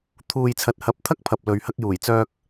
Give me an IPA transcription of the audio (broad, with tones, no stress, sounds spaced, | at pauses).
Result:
t̪ʰ uː˨ j t͡sʰ ɐ˨ t̚ h ɐ˨˥ p̚ t̪ʰ ɐ˥ k̚ pʰ ɐ˨ p̚ l ɵ˨ ɥ h ɐ˧ k̚ j uː˨˩ j t͡s œː˧ k̚